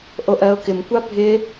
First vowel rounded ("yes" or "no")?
yes